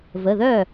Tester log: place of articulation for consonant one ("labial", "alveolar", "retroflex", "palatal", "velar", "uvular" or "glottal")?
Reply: labial